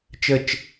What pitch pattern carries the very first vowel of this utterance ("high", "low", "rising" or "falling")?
falling